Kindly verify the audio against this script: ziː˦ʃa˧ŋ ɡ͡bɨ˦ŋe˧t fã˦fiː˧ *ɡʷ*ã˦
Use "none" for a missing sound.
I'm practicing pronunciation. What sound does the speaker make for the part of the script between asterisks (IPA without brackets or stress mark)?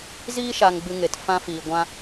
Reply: ɡʷ